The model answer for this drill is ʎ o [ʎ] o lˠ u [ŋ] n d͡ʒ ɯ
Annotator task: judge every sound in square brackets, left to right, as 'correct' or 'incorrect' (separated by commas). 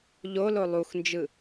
incorrect, incorrect